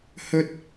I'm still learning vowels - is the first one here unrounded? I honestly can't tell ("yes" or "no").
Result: no